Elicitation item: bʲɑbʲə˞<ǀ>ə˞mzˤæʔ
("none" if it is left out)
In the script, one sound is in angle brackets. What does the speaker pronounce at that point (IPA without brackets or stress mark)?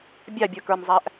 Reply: k